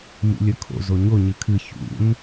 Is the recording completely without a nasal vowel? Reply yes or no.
yes